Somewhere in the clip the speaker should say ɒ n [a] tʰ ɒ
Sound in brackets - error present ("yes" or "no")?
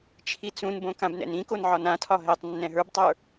yes